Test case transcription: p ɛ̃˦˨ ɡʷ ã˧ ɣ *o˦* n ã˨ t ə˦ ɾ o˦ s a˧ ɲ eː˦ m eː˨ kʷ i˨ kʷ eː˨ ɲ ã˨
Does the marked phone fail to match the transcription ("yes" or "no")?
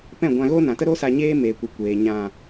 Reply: no